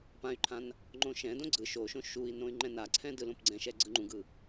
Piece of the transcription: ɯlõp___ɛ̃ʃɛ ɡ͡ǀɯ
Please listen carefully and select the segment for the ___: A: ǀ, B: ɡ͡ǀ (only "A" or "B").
B